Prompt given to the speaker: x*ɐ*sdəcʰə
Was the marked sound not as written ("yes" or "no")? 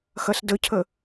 no